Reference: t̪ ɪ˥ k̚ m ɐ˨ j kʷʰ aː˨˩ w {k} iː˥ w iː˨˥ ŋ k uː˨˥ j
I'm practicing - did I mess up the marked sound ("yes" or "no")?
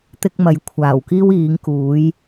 no